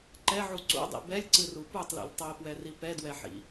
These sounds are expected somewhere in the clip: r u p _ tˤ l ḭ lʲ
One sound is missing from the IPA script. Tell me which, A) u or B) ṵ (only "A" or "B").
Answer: A